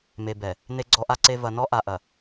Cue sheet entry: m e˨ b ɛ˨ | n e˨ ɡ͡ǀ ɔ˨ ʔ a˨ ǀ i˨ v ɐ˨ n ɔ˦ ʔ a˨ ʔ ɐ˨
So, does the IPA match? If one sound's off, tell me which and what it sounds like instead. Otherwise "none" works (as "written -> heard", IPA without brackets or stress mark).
i˨ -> e˨